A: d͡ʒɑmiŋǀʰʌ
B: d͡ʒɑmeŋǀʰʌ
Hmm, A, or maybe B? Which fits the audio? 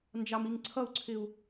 A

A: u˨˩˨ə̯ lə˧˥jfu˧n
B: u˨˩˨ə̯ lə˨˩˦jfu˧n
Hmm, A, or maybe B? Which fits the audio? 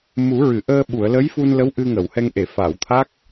A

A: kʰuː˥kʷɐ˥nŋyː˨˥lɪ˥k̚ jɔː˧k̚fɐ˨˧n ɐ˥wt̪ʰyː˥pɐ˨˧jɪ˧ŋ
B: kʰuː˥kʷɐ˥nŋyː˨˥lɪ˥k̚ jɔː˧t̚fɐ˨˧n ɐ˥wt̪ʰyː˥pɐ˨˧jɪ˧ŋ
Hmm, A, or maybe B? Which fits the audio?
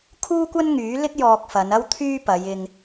A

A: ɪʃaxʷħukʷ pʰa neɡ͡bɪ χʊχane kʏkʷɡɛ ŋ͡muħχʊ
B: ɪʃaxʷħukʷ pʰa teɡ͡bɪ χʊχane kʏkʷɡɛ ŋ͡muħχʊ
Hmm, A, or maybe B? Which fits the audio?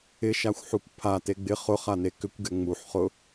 B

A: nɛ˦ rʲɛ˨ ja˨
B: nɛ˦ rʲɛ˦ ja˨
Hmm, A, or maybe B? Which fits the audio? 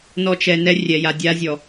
A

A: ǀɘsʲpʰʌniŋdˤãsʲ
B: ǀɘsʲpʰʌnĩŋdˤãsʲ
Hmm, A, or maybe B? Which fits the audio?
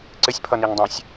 A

